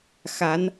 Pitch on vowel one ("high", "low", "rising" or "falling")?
rising